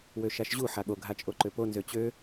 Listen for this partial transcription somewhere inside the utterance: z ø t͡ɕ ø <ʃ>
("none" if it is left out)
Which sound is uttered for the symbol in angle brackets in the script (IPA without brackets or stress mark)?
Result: none